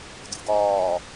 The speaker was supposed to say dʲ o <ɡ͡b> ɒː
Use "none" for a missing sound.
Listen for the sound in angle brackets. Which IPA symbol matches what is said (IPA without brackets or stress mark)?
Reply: ɡ